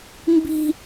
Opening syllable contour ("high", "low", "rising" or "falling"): high